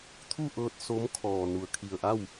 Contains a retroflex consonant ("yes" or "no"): no